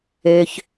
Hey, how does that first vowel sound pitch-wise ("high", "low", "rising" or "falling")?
low